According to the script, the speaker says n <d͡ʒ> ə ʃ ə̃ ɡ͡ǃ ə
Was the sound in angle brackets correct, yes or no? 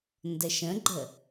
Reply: no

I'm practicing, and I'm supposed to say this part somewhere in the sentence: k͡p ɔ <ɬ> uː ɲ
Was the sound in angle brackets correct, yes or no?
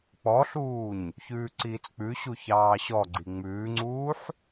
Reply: yes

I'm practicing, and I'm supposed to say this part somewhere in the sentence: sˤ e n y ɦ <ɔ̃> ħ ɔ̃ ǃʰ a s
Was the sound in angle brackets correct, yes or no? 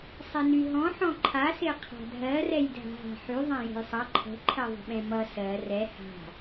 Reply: yes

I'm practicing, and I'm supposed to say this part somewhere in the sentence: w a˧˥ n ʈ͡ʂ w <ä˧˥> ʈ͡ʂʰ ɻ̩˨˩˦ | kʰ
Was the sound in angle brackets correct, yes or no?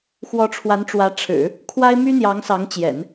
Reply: yes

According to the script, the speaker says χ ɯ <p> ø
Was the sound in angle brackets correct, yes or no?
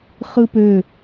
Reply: yes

